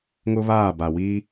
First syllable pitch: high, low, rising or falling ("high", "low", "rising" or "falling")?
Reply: high